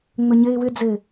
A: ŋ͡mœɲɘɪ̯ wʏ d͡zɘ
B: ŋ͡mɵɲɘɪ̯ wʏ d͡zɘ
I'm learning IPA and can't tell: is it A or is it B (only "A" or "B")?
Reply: B